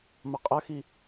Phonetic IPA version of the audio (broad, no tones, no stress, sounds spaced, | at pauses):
m ɐ qʼ ɐ x i